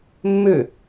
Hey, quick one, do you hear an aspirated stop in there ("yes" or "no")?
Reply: no